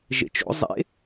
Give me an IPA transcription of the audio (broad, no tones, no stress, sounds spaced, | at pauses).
ʒ ḛ t͡ʃ o̰ zˤ ḛ